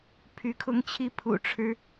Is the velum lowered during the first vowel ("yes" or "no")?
no